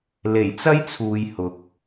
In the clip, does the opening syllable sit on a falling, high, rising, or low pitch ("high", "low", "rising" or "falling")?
low